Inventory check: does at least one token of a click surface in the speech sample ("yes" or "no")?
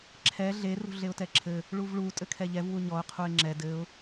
yes